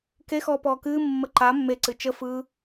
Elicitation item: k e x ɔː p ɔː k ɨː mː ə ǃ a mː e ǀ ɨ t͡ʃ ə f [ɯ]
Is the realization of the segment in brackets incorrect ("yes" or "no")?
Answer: no